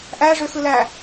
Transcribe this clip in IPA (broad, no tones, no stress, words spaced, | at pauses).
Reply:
ʔæʐøxɯlæ